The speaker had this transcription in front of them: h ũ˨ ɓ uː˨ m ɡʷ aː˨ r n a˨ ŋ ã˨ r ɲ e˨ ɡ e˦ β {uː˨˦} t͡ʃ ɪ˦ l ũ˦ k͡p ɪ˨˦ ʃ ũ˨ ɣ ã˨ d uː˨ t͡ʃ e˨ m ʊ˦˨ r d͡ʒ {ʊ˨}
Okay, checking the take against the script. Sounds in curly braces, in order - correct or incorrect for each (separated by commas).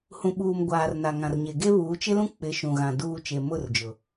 correct, correct